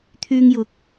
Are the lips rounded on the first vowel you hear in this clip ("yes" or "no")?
yes